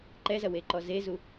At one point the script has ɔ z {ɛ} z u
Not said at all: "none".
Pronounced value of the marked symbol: e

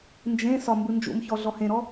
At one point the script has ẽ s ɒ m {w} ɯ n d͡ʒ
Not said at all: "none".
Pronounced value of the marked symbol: b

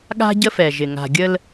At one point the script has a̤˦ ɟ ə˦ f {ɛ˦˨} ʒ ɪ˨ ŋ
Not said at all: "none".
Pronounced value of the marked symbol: ɛ˨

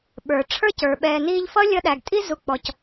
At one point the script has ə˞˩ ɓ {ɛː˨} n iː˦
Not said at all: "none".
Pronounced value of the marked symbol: ɛː˨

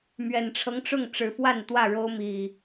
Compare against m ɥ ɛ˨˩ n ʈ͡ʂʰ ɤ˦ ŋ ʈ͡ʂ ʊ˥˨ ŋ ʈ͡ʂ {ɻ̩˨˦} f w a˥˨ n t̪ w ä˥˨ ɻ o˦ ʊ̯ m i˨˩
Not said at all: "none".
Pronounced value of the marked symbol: ɻ̩˨˦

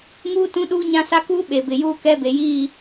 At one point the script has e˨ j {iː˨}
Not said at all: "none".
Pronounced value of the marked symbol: iː˦˨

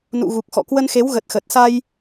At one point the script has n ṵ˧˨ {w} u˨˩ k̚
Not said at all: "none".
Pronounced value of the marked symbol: ɣ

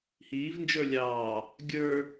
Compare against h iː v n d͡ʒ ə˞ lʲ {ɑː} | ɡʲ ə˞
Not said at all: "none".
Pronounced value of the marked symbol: ɑː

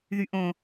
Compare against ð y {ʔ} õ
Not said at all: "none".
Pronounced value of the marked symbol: ʔ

